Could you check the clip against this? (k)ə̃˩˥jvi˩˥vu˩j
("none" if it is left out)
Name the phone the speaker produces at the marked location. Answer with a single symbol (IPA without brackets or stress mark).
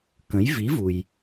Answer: k